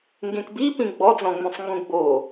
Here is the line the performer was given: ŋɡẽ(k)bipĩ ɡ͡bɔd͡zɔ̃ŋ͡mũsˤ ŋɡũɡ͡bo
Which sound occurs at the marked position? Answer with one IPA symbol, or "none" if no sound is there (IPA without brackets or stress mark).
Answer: k